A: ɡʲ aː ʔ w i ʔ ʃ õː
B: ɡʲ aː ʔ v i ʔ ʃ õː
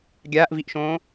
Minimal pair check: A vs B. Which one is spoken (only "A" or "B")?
B